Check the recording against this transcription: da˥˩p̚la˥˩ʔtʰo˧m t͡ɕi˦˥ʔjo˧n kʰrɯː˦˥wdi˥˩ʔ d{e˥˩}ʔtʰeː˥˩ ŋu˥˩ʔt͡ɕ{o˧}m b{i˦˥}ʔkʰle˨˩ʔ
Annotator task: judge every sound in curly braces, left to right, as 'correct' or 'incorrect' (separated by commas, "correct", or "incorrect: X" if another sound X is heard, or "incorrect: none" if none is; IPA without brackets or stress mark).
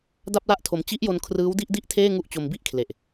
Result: incorrect: i˥˩, correct, incorrect: i˥˩